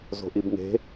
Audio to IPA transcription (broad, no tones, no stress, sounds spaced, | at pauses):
z o̤ ʔ i b ŋ e̤